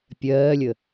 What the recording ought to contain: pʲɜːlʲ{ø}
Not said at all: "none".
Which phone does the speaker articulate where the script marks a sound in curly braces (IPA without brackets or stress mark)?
ə